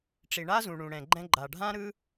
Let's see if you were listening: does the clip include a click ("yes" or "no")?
yes